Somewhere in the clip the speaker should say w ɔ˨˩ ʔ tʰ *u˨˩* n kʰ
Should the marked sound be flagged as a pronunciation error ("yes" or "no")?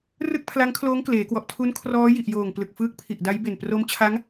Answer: yes